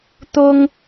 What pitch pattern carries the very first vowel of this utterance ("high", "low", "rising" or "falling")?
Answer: high